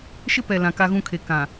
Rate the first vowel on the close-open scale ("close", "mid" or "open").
close